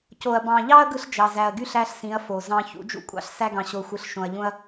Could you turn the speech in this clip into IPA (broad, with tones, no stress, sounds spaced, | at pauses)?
c o˨ ɐ̯ b ɑ̃˨ ʎ ɑ˦ ɐ̯ ɡ ɯ˦ ɬ d͡ʒ ɑ˨ z æ˨ ɐ̯ ɡ y˦ ɬ æ˦ ɬ s ĩ˨˦ ɐ̯ f o˨ z ɑ̃˦ ç ṵ˨˦ d͡ʒ ṵ˦ kʷʼ ɑ̰˦ ɬ s æ˦ ɡ ɑ̃˨ ɕ o˨ xʷ ɯ˨ ɬ ʃ õ˨ ɐ̯ ʎ ũ˦ ɐ̯